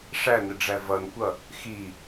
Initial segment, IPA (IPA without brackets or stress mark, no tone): ʂ